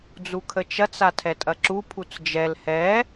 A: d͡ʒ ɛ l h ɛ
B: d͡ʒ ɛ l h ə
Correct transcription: A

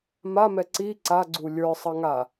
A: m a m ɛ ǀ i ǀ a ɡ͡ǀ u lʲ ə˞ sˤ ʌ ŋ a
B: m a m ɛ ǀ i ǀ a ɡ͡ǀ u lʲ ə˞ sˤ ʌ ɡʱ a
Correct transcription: A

